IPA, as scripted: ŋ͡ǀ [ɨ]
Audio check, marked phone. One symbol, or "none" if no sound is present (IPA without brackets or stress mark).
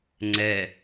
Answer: ɛ